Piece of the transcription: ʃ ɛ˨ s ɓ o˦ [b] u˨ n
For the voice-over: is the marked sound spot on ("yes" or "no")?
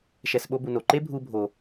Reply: yes